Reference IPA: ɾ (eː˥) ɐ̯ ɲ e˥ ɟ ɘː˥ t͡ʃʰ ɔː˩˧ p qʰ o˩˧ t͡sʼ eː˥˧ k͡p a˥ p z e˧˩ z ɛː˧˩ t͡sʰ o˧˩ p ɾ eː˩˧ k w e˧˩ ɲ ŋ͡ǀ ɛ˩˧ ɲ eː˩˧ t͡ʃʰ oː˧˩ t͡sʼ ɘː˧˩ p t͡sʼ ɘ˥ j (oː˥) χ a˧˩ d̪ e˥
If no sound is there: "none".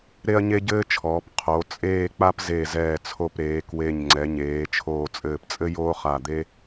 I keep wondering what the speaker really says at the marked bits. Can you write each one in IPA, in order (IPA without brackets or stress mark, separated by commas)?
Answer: e˥, oː˥